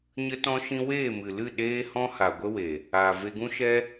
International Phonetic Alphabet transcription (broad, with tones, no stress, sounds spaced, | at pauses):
ɲ ə˦ t ɔ̃˦ ʃ ĩ˦ w eː˦˨ m ɨ˨ l ɨ˦˨ ɗ eː˦ h ɔ̃˦ h a˨ ɡʷ ə˦ w e˨ | aː˨ v e˧ ɡ ũ˦ ʃ ɛ˦